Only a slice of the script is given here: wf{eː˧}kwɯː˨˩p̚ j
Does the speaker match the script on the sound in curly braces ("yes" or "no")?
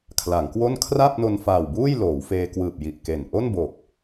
yes